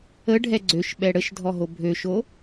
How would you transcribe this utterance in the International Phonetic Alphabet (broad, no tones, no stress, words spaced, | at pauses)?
əɖʱɛ ɡ͡ǀøʃɓɛ ɽəʃdʱɔɦo bʱøʃo